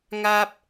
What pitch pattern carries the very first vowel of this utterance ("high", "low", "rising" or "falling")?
high